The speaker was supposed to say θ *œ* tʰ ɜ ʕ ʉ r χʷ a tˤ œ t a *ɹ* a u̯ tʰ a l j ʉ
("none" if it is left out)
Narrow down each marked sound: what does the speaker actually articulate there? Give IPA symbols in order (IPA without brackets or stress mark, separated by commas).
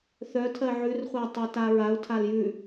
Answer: œ, ɹ